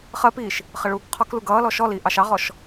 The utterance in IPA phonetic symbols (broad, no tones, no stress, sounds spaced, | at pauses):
χ ɜ p iː ʃ | χ ə ɭ uː k qʰ ɔ k l u ɡ ʌː l ɔ ʃ ɔ l iː ʔ ɑ ʃ ɑ ʁ ɔ ʃ